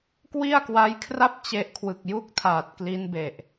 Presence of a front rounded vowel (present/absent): absent